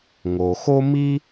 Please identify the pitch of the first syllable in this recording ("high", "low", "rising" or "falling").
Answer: low